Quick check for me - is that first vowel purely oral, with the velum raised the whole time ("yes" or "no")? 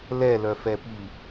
yes